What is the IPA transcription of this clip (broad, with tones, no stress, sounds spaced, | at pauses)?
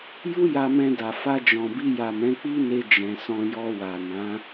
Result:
j u˦ j a˧ m ɛ̃˧ d a˨ f a˧ d͡ʒ ɔ̃˨ b i˧ j a˨ m ɛ̃˨˦ k͡p i˦ n e˧ d͡ʒ ɛ̃˨ s ɔ̃˧ j ɔ˧ w a˨ n ã˨˦